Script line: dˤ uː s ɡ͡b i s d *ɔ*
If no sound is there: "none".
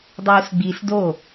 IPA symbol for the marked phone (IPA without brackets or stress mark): o